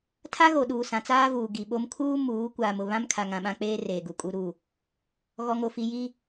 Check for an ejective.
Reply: present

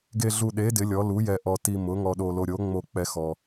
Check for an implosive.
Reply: present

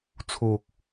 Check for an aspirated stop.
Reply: present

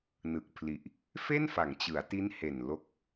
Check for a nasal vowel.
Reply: absent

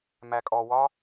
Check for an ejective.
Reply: present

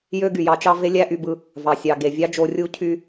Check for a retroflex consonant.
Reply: absent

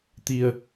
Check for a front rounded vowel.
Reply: absent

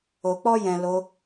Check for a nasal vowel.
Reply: present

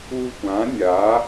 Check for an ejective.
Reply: absent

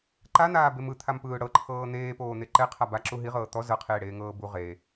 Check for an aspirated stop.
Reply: present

